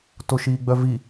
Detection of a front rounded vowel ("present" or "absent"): present